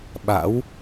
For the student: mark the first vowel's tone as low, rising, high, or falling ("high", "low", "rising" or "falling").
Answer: rising